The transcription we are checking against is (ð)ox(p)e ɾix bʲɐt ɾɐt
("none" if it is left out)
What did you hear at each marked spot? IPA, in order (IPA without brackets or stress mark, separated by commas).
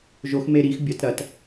ʒ, m